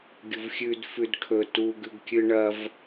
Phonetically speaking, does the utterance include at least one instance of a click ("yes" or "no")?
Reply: no